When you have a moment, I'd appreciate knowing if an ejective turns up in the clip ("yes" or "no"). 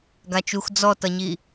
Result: no